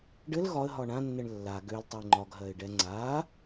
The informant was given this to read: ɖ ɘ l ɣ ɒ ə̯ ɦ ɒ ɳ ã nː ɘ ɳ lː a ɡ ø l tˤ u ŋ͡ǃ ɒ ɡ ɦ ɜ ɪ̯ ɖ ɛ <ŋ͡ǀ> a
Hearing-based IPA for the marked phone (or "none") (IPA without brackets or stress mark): ŋ͡ǀ